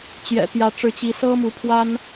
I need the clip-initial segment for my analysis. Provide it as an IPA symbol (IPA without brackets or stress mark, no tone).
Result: t͡ɕ